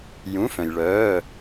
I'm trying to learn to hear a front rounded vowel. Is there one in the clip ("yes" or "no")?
yes